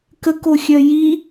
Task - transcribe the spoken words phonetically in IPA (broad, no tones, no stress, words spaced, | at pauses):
kəkoxʲœ ji